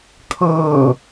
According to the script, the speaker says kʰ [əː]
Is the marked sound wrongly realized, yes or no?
yes